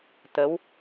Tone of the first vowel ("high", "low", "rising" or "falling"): rising